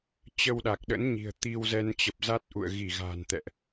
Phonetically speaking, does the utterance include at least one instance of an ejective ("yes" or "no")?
no